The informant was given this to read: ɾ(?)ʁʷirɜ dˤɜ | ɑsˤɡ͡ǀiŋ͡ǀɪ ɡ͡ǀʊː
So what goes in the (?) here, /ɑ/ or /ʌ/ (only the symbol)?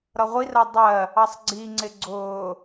ʌ